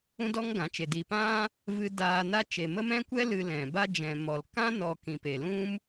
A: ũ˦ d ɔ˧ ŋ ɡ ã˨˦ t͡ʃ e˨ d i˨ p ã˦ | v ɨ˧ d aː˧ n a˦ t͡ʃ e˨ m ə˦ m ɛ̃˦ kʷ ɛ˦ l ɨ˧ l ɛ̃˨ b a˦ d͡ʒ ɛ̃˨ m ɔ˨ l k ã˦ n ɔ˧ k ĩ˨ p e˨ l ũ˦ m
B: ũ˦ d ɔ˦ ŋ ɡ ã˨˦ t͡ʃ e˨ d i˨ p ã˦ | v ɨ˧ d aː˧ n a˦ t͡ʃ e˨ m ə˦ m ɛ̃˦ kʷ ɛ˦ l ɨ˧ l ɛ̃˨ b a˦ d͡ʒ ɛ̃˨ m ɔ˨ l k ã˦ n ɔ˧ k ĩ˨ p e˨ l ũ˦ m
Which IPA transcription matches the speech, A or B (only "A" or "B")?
B